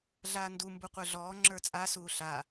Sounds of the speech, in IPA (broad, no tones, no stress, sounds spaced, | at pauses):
ɮ aː n d u m b u qʷ ə˞ ɮ ɔː ŋ͡ǁ ə˞ t͡sʼ a s uː ɬ a